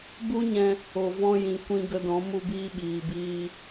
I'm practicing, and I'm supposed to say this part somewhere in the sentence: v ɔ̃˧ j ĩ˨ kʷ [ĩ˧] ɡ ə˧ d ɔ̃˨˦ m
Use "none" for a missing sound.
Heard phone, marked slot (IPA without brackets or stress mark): ĩ˧